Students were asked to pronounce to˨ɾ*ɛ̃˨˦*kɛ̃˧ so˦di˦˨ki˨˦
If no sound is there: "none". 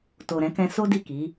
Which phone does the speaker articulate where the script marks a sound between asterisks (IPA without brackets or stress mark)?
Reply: ɛ̃˨˦